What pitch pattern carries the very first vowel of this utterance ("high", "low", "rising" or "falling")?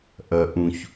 low